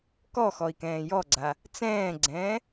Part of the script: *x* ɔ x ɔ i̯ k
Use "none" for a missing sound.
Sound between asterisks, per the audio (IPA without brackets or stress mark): k